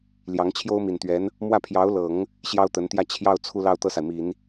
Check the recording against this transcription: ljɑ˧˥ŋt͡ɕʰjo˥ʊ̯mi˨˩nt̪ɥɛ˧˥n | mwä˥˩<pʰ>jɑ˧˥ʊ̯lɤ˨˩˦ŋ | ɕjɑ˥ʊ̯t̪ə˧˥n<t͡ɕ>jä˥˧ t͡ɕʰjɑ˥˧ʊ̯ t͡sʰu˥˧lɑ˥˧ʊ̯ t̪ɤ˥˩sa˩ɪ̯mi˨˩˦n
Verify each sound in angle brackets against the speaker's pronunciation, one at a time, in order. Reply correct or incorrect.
correct, incorrect: t̪

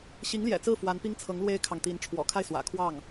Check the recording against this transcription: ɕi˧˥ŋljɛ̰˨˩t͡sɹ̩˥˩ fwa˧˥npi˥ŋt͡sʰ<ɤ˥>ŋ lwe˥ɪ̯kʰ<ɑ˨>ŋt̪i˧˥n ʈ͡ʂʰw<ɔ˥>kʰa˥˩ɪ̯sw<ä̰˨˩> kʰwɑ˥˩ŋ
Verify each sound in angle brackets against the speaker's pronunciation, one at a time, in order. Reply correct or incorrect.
incorrect: ɤ˧˥, correct, incorrect: ɔ̰˨˩, correct

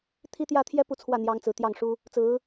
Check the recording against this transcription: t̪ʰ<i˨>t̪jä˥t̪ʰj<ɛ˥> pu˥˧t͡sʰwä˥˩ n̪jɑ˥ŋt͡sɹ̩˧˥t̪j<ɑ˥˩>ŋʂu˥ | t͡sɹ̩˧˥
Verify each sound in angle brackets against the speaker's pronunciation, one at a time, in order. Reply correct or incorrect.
incorrect: i˥, correct, correct

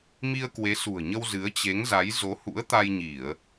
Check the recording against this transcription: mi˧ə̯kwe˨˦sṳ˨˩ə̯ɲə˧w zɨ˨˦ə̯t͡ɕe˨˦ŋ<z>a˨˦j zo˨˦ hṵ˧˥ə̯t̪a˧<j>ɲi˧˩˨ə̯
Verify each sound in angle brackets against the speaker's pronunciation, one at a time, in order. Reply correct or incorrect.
correct, correct

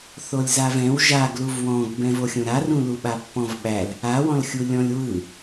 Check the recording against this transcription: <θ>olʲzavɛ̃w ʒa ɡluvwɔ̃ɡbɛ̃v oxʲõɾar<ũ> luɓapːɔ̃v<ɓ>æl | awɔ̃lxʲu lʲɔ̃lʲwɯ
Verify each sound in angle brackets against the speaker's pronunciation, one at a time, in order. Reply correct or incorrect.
correct, correct, correct

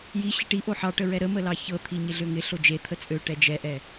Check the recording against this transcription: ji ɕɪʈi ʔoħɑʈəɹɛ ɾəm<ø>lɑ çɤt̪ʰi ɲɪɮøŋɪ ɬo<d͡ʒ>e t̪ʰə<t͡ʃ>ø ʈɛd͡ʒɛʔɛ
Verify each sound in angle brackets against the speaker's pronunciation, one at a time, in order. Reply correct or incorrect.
incorrect: ə, correct, incorrect: t͡sʼ

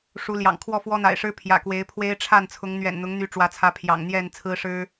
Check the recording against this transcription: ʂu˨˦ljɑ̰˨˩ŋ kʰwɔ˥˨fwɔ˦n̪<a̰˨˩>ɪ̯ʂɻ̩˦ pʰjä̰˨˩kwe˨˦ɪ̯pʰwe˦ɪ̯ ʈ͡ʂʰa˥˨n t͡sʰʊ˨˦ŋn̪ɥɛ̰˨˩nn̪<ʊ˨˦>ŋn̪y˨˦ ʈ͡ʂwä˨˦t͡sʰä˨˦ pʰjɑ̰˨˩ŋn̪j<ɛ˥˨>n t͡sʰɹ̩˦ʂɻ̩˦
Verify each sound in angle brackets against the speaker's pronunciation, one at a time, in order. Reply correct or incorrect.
correct, correct, correct

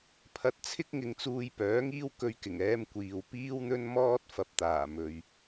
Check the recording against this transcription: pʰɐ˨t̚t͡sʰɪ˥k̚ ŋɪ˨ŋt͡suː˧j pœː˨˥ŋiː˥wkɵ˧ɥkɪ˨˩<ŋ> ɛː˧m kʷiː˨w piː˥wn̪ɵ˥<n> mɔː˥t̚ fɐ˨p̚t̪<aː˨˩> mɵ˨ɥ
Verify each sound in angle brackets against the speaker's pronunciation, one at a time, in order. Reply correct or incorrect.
correct, correct, correct

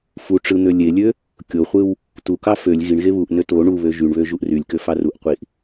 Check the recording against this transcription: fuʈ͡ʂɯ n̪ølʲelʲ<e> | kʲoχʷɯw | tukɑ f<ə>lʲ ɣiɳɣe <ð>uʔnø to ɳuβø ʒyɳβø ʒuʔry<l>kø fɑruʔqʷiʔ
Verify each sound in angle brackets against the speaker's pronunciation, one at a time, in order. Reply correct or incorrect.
incorrect: ø, incorrect: ø, incorrect: β, incorrect: lʲ

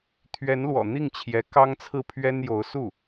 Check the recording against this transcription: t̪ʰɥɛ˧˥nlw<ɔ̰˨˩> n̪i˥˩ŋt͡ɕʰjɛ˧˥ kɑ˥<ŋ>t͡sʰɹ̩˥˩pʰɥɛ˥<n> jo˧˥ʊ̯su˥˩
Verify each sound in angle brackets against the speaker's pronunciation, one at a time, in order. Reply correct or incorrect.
correct, correct, correct

